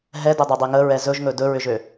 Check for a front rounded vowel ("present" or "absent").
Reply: present